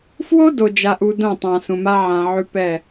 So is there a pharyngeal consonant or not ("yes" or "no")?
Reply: yes